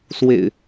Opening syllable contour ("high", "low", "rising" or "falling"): low